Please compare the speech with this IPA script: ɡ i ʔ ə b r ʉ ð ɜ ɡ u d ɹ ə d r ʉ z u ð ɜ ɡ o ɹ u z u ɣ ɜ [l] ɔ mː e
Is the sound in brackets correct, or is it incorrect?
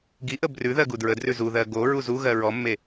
incorrect